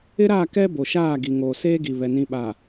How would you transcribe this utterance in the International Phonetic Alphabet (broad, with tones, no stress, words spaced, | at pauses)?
ɪ˦ɾa˦˨kɛ˦ bo˨ʃaː˦˨ɡi˨ŋoː˨ seː˦ ɡi˨βɛ˨ nĩ˨ɓa˨